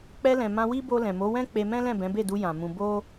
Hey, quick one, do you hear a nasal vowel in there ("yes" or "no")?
yes